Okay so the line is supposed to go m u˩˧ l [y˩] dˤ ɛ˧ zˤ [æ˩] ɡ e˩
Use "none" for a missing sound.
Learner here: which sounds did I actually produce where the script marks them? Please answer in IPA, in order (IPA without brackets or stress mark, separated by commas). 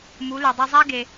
y˩, æ˥